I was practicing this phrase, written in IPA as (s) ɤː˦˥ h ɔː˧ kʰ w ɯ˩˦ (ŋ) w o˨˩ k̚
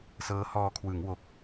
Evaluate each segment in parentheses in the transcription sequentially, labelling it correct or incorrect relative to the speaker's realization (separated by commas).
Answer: correct, correct